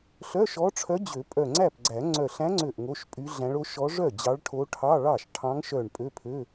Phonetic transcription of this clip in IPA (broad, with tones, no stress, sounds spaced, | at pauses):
ɬ œ˧˥˧ ʃ ɔ˧˥ ʈ͡ʂʰ œ˧˥ d͡ʑ ø˨˩˦ pʼ œ˧˩ ŋ͡ǀ æ˥˩ p ɡ͡ǀ æ˨˩˦ ŋ͡ǀ œ˧˩ ɬ æ̃˧˥ ŋ͡ǀ ø˧˩ ʔ ŋ o˧˥˧ ʃ pʼ y˧˥ ɮ æ̃˧˥ ɭ o˧˥ ʃ ɔ˧˥ ʐ œ˥˩ d͡ʑ ɑ˧˥ ɭ ʈʰ o˧˥ ʈʰ ɑ˧˥˧ ɭ ɑ˥˩ ʃ ʈʰ ɑ̃˧˥ ŋ ʃ œ˧˩ ɳ pʼ ø˧˥˧ pʰ ø˧˥˧